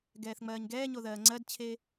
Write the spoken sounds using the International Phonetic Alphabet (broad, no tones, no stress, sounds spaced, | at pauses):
ɡ ɛː θ ŋ͡m ɜː ɲ ɡ ɛː ɲ o ð ɜː ŋ͡ǀ ɜ d t͡ɕʰ e